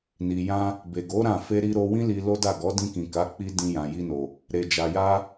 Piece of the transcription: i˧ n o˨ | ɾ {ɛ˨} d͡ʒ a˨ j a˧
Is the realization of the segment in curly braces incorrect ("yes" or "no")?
yes